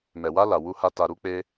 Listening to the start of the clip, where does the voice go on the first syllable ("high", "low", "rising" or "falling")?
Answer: low